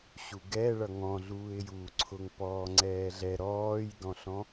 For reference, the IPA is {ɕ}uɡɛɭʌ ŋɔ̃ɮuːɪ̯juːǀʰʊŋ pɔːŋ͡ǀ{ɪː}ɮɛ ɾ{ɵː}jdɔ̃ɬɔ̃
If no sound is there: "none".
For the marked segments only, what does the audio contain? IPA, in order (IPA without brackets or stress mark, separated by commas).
ɕ, ɛː, ɔː